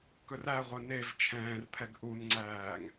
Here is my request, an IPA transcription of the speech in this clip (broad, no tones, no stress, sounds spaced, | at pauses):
k ɵ r æ ʁʷ œ n e v t͡ʃʰ ɛ̃ː r pʰ ɛ ɡ ʔ u n ŋ͡ǀ æː ŋ